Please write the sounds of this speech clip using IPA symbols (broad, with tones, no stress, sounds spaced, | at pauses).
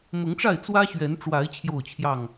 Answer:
m ʊ˨˦ ŋ ʈ͡ʂ a˥˨ ɪ̯ t͡s w ä˦ ɕ ɥ ɛ˨˦ n ʈ͡ʂ w a˨˦ ɪ̯ t͡ɕʰ j o˥˨ ʊ̯ t͡ɕʰ j ɑ˥˨ ŋ